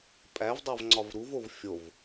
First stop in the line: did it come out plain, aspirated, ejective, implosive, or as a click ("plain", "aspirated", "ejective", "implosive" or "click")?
ejective